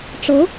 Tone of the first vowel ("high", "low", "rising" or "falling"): rising